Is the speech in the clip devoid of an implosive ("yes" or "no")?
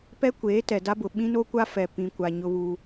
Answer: no